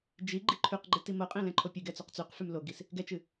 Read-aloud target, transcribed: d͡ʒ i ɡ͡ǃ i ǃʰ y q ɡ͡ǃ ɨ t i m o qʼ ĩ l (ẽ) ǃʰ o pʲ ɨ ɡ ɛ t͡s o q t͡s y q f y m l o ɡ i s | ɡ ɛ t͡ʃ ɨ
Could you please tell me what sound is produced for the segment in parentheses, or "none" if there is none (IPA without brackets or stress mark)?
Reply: ɛ̃